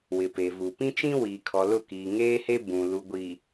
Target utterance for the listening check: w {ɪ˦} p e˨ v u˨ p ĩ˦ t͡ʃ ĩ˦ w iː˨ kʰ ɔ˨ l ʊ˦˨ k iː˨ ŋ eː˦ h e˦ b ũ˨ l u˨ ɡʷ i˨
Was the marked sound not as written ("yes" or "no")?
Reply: yes